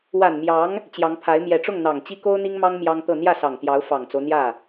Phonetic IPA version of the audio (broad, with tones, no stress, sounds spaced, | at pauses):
w a˨˩ n m j ɑ˧˥ ŋ | t͡ɕ j ɑ˧˥ ŋ pʰ a˧˥ ɪ̯ m j ɛ˨˩ ʈ͡ʂ ʊ˥˩ ŋ n̪ ɑ˨˩ ŋ t͡ɕ i˥ k o˥ ʊ̯ n̪ i˥ ŋ m ɑ˥ ŋ m j ɑ˥ ŋ t̪ ɤ˥˧ n̪ j ä˥˩ s ɑ˨˩ ŋ t̪ j ɑ˧˥ ʊ̯ f ɑ˨˩ ŋ t͡s o˦ ʊ̯ n̪ j ä˥˩